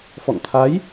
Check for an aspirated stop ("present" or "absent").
present